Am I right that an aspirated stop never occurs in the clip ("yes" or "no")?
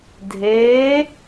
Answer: yes